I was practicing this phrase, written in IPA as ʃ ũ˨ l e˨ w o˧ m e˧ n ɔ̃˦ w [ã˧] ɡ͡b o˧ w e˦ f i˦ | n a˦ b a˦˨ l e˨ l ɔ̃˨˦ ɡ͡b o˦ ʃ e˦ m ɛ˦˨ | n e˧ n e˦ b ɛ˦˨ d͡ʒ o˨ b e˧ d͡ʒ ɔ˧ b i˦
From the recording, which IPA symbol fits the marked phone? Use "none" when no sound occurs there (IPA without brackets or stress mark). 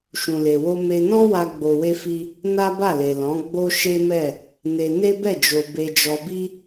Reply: a˧